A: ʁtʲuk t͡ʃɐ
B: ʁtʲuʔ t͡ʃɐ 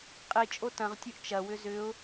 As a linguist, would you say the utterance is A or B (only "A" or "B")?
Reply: B